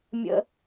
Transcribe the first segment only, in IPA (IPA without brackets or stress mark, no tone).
mʲ